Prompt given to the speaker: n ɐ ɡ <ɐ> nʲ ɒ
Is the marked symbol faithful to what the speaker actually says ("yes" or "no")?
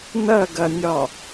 yes